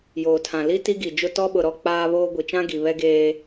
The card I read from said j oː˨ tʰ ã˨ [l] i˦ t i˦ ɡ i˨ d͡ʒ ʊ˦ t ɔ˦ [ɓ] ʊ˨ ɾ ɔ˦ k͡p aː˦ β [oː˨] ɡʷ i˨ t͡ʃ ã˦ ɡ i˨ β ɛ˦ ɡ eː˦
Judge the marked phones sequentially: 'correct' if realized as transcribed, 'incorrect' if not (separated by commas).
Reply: correct, correct, incorrect